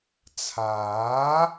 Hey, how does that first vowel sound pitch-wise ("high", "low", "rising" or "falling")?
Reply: rising